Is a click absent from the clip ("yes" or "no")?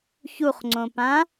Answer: no